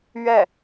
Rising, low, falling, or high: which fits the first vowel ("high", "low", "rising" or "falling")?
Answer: falling